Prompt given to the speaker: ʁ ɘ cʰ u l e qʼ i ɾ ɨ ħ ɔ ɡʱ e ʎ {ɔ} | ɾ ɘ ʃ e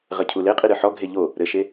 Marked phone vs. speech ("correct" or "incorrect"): incorrect